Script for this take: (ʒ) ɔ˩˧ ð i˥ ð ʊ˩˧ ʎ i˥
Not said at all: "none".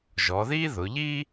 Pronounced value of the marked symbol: ʒ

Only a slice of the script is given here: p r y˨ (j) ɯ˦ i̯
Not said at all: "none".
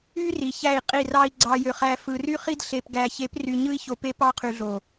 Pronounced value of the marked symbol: ɲ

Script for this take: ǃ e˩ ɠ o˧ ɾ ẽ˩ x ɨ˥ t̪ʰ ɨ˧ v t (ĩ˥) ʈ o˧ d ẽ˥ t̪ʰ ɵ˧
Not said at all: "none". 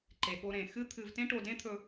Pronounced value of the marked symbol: ẽ˥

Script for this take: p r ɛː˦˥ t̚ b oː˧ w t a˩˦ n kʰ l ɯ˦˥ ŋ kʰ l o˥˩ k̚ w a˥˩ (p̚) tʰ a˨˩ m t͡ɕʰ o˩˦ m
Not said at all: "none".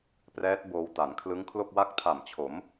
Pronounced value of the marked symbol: k̚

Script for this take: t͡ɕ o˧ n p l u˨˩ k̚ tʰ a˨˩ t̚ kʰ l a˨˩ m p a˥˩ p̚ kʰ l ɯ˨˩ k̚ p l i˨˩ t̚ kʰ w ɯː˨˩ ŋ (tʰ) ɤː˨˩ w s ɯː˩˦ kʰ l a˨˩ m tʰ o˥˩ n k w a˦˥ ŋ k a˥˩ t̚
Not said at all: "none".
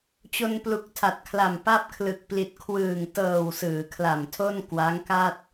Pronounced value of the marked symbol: t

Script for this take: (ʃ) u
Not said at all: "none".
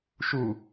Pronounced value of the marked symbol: ʃ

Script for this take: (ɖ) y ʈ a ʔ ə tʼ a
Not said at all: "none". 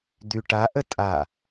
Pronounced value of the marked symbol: d̪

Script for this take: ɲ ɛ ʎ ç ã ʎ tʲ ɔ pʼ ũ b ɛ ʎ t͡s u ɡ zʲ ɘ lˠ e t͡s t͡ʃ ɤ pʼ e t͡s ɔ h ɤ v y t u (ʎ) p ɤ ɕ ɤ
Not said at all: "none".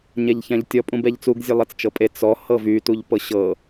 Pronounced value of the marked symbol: ʎ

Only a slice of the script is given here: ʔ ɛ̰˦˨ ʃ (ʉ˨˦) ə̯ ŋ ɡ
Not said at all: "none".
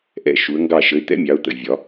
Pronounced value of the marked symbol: u˨˦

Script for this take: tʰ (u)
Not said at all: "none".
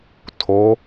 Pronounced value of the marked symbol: o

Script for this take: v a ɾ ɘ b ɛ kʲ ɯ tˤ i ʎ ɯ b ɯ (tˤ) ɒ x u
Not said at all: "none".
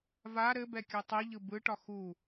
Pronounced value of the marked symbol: ʈ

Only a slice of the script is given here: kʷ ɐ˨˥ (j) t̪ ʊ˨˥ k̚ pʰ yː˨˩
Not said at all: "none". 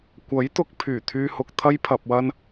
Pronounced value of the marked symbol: j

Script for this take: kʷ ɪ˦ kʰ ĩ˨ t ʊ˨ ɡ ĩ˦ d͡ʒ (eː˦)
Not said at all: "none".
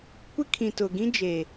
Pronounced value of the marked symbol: eː˨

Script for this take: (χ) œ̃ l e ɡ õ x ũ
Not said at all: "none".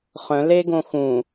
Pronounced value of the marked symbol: χ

